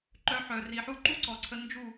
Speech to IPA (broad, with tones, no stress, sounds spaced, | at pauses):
ǃ œ˧ ħ œ˨ r i˨ ħ u˦ ǃ u˦ ǀ ɔ˨ ǀʰ ə˧ n d͡ʒ u˦˨